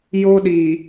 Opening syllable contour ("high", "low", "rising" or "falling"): high